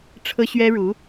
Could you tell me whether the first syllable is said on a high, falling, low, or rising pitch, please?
high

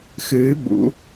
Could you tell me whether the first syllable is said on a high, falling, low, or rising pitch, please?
rising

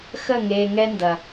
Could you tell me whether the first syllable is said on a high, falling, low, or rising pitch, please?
falling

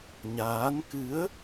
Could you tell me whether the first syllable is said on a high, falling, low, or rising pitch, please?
rising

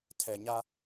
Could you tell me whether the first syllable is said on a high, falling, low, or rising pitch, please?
low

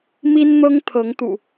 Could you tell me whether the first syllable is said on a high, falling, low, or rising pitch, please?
high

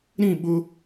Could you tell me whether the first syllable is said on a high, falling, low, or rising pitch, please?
falling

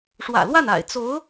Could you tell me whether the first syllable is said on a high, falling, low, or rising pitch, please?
low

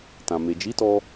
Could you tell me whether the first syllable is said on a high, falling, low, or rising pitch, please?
low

